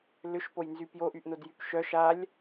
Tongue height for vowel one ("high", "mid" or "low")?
high